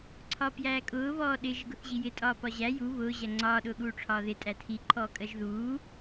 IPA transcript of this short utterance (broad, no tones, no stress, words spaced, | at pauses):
ǀʰɒːpjæːkʼʊː βɔːɗɪ ʒɪɡʊθʑijɪ tʼɒːpɒʑæ ju βʊː ʑæŋ͡ǀɒː ɗʊːɠuːʈ͡ʂʰɒːðɪ tʼætʰi ǃʰɔːkʼɜʒðuː